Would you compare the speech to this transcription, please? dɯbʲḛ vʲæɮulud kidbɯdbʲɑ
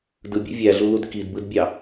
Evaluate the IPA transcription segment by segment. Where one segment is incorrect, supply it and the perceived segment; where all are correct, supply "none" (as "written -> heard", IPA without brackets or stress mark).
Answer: none